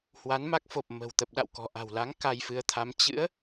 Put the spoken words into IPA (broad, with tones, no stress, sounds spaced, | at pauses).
h w a˨˦ n m a˦˥ k̚ f o˨˩ p̚ m ə̤˨˩ w t̪ ə˨˩ p̚ ɗ a̰˧˨ w k ɔ̤˨˩ ʔ a̤˨˩ w l a˨˦ ŋ k a˧ j f ɨ˨˦ ə̯ t̪ʰ a˨˦ m t͡ɕ ɨ̰˧˥ ə̯